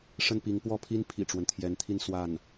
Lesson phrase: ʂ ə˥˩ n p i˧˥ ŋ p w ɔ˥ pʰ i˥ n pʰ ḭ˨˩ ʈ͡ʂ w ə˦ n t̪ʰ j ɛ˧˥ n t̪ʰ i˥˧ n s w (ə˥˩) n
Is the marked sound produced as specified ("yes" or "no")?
no